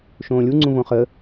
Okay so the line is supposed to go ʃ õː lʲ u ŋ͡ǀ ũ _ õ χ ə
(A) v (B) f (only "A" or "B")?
A